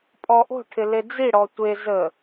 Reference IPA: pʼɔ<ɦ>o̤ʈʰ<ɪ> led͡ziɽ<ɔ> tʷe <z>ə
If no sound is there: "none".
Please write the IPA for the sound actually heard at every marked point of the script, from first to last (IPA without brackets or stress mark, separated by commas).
ʔ, ɪ, ɔ, z